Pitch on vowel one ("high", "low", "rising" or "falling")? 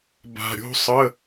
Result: low